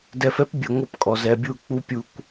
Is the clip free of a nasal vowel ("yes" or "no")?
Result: yes